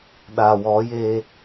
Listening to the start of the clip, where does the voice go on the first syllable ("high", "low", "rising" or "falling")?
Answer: low